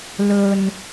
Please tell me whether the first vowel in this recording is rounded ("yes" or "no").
yes